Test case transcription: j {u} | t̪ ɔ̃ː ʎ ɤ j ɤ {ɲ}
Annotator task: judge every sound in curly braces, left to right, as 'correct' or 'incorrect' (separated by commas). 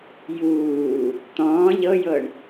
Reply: incorrect, incorrect